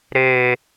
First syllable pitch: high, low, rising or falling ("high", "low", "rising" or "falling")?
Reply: high